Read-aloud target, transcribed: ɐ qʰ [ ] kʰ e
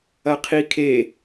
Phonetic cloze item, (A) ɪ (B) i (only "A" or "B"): B